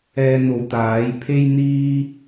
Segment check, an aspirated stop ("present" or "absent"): present